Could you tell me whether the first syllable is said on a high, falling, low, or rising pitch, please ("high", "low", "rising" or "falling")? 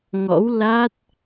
rising